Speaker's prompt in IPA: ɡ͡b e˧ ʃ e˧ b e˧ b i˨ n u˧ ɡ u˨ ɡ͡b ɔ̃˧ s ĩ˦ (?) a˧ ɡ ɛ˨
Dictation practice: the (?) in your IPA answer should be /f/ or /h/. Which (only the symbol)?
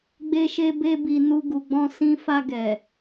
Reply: f